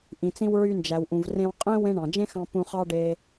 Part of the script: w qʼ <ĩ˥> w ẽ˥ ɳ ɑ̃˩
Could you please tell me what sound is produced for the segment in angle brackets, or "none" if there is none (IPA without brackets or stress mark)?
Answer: ẽ˥